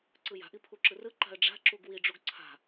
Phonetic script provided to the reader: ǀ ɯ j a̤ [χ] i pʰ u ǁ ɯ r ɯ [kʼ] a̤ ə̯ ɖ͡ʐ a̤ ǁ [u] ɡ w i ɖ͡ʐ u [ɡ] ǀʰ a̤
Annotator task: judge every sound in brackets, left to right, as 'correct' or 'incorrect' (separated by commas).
incorrect, incorrect, correct, correct